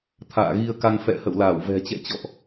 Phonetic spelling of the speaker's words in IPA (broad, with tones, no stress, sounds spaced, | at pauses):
t̪ʰ a̰ː˧˨ ɣ i˧ ə̯ k a˧ ŋ f ɛ̰˧˨ h ə̰˧˨ w l aː˧˩ w v ɛ̤˨˩ t͡ɕ ɛ̰˧˨ t͡ɕ ɔ̰˧˨ ʔ